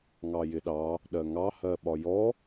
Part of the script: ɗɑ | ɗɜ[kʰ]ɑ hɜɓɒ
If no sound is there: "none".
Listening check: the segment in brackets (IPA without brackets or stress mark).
ŋ